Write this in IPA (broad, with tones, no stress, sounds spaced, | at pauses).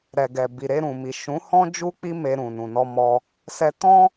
ɾ ɛ˨ ɡ ɛ˨ b i˨ ɾ e˧ ɾ ũ˨ m i˨ ʃ ũ˨˦ h ɔ̃˦ d͡ʒ u˦ k͡p i˦ m e˧ ɾ ũ˨ n ũ˨ n ɔ˧ m ɔ˧ | s ɛ˧ t ɔ̃˦